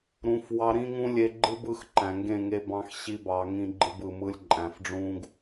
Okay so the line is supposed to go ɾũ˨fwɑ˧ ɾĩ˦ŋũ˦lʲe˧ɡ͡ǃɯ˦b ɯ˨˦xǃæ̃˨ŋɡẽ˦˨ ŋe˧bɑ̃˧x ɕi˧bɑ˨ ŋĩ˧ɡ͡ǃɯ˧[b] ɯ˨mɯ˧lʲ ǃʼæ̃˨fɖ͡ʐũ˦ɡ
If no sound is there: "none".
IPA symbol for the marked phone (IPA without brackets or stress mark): b